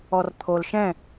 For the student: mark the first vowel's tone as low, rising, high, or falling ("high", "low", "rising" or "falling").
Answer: low